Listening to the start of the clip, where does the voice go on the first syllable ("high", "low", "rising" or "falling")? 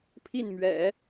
falling